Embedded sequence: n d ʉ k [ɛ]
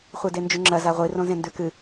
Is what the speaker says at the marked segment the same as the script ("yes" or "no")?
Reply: no